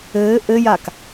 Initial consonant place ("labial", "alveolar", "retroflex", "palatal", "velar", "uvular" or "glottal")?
glottal